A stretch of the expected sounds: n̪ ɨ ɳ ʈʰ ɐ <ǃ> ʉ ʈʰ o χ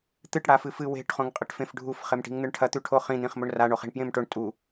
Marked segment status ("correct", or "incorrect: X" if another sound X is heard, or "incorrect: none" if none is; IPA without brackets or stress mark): incorrect: t̪